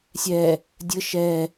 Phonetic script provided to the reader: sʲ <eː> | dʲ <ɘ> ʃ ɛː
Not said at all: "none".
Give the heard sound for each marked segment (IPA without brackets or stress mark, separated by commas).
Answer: ɛː, ɘ